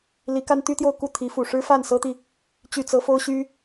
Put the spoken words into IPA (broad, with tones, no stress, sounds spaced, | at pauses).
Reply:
l i˧˥ k a˥ n t̪ y˥ t̪ j o˥˧ ʊ̯ k u˥˩ t̪ʰ i˧˥ f u˨˩ ʂ ɻ̩˥ f a˥˩ n s ɤ˥ t̪ i˨ | t͡ɕ y˥˩ t͡s ɤ˥ f o˥ ʊ̯ ɕ y˥